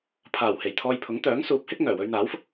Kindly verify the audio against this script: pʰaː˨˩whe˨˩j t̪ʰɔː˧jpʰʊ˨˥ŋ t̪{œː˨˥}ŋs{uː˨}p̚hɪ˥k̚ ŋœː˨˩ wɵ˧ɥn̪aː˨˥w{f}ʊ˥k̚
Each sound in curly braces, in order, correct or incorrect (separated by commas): correct, incorrect, correct